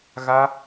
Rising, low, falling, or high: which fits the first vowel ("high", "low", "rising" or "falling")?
high